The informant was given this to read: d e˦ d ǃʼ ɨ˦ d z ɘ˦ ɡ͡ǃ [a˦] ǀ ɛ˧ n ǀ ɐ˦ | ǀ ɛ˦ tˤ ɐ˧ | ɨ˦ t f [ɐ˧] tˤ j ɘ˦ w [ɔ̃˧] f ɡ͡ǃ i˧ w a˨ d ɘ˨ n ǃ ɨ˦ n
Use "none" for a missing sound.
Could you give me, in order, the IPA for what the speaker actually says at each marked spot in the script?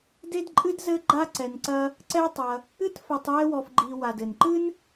a˦, ɐ˧, ɔ˧

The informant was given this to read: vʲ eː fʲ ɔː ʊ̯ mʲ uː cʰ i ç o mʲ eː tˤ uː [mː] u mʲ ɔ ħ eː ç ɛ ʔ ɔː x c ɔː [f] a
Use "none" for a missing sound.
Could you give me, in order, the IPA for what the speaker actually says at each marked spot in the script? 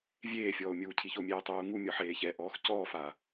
ŋ, f

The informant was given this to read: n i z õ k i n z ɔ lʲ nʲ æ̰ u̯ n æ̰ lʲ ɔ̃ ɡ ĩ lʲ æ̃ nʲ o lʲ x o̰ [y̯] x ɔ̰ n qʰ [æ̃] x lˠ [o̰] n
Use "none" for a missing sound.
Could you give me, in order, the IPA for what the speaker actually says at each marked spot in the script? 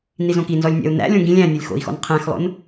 i̯, æ̃, o̰

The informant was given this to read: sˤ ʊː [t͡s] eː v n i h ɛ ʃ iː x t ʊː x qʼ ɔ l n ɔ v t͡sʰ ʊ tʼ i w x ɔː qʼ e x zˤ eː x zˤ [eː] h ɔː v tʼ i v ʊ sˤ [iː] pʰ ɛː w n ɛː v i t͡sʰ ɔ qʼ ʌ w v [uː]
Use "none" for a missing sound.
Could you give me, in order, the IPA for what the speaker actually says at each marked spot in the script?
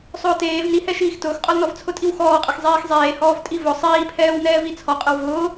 t, eː, iː, ʊː

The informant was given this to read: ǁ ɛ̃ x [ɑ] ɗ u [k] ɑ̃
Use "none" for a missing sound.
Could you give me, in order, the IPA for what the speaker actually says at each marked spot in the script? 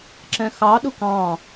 ɑ, k

